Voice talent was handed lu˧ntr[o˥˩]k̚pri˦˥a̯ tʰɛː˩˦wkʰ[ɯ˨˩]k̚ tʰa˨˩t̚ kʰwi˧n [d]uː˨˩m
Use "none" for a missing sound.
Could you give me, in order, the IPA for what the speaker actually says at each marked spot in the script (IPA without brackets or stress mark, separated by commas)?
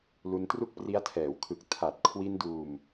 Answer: u˥˩, ɯ˨˩, d